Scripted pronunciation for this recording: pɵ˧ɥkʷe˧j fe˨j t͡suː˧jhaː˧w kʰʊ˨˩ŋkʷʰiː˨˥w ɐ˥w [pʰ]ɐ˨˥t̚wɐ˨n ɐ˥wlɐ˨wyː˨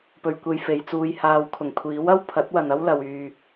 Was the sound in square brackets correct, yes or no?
yes